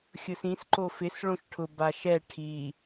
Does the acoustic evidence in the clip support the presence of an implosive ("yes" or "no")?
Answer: no